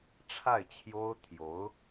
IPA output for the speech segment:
ʈ͡ʂʰ a˥˩ ɪ̯ t͡ɕʰ j o˥ ʊ̯ t̪ʰ j o˧˥ ʊ̯

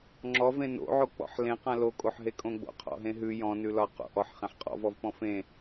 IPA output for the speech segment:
ŋ͡ǁ ɔ v ẽ n o̰ ʕ o k͡p ɔ̰ ħ l ẽ q ã l o kʼ o ħ ɦ e kʼ õ ɡ͡b o̰ qʰ ɔ̰ ɦ ẽ ɦ ʉ j ɔ̃ n ʉ l ɒ q o̰ ʔ ɔ ħ χ ẽ ħ qʼ ɔ̰ v ɔ v p ɔ̃ f ẽ

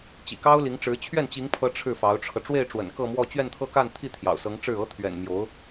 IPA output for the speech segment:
t͡ɕ ḭ˨˩ k ɑ˥ ʊ̯ l i˧˥ ŋ ʈ͡ʂ ɻ̩˧˥ t͡ɕʰ ɥ ɛ˥˩ n t͡ɕ i˧˥ ŋ pʰ ɤ˧˥ ʈ͡ʂʰ ɻ̩˥˩ f ɑ˧˥ ʊ̯ ʈ͡ʂʰ ɤ˧ ʈ͡ʂ w e˥˩ ɪ̯ ʈ͡ʂ w ə̰˨˩ n k ɤ˥˧ m w ɔ˥˧ t͡ɕ ɥ ɛ˥˧ n t̪ʰ ɤ˥˧ k a˥˧ n t̪ʰ i˥˩ t̪ʰ j ɑ̰˨˩ ʊ̯ s ɤ˧˥ ŋ ʈ͡ʂ ɻ̩˥˩ ɤ˧˥ t̪ʰ ɥ ɛ̰˨˩ n m j o˧˥ ʊ̯

